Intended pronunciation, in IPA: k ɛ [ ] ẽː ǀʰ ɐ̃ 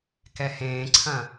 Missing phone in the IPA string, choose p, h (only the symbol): h